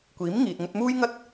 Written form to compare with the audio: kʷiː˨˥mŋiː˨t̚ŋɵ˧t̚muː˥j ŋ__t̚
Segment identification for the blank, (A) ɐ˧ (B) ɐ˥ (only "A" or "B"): B